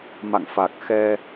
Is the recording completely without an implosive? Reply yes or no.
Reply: yes